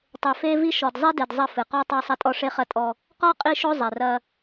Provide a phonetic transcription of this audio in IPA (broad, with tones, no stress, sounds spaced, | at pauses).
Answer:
tˤ e˨ f e˦ v i˦ ʃ ɔ˨ d zˤ i˦ d e˨ d zˤ ɐ˦˨ f ɨ˨ q ɔ˦ tˤ a˦ sˤ ɐ˦ tʼ ɔ˦ ʂ e˦ χ ɐ˦ tʼ ɔ˦ | q ɔ˦ qʼ i˦ ʃ o˦ zˤ ɛ˨ r ɐ˦